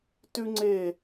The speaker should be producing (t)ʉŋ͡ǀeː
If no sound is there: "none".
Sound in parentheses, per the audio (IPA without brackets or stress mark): t